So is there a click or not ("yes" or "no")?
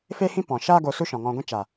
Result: no